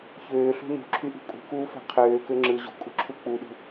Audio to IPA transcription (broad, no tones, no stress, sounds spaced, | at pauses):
ç øː ɬ ṳ n ṳ ǁʰ y ʔ ṳ kʼ ṳ k uː f æ̤ qʰ øː k ø ŋ͡ǁ ɯ ʑ ṳ kʼ ṳ ǁʰ u k͡p u ɗ ṳ